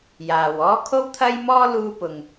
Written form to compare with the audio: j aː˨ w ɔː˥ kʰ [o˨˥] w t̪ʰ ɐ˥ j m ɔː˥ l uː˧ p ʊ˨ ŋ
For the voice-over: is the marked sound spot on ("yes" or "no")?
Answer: no